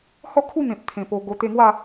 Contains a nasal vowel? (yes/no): yes